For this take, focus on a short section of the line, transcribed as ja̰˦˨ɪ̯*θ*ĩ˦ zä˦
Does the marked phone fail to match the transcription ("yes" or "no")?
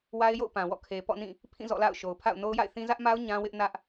no